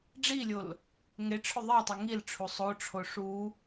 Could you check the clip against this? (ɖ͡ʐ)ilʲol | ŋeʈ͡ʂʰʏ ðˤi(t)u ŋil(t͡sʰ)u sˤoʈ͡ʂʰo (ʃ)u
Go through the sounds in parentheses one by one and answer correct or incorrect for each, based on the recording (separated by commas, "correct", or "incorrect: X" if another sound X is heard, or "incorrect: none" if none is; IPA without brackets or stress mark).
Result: correct, incorrect: tˤ, incorrect: ʈ͡ʂʰ, incorrect: ʂ